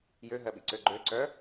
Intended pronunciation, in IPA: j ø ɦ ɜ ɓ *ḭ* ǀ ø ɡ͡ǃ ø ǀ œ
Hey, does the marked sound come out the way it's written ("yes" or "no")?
yes